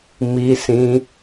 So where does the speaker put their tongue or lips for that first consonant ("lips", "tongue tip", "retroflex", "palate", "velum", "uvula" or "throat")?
lips